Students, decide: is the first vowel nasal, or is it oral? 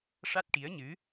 oral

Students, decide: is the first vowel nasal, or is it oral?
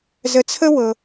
oral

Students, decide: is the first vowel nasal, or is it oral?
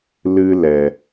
oral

